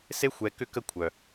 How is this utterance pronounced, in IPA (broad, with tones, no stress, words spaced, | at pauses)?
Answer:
se˦ xʷɛ˧kʏ˦ kə˦kʷʰœ˨